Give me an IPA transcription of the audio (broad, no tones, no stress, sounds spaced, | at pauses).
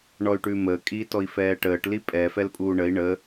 ɳ ɔ y̯ ʈ ʉ m əː kʼ iː t ɔ i̯ f ɛː ʈ əː ʈ l i pʼ ɛ f ɛ l pʼ uː ɳ ə i̯ ɳ ə